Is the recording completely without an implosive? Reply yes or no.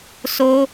yes